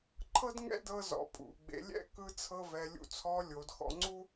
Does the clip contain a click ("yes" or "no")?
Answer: yes